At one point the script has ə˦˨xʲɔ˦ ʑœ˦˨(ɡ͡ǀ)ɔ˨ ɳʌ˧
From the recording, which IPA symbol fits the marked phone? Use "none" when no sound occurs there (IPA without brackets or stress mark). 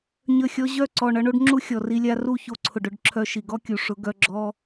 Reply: ǀ